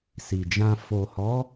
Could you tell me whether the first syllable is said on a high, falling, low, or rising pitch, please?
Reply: low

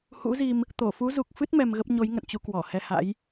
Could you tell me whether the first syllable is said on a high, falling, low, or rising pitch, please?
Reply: rising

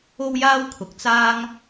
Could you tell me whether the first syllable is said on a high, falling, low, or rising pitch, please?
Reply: high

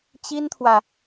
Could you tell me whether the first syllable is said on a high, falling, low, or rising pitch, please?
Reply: high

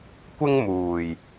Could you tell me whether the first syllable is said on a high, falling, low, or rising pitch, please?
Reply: high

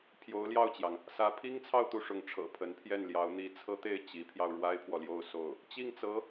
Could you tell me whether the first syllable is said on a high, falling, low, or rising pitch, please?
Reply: rising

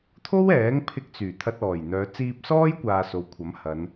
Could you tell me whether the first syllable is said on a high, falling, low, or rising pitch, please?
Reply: high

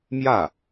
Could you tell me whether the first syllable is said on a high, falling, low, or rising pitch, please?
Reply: falling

